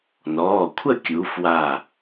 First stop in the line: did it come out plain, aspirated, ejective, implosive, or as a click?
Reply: aspirated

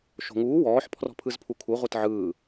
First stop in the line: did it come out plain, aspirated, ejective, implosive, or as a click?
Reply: aspirated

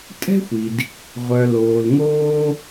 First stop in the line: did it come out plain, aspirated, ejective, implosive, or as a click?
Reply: ejective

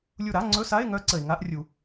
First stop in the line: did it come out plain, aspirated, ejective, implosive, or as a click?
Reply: click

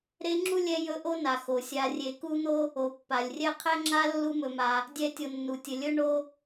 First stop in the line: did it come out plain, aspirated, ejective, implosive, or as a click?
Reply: click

